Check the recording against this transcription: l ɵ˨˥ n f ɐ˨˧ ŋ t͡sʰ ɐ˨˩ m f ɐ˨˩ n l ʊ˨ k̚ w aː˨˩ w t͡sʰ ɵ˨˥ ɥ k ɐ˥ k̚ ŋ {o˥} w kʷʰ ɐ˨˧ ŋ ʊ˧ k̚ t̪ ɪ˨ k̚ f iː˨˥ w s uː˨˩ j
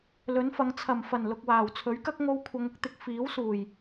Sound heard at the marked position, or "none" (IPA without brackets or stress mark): o˧